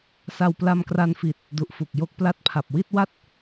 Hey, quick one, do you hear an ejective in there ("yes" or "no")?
no